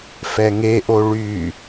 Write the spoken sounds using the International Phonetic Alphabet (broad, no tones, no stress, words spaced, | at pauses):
fɛŋeʔo ɭy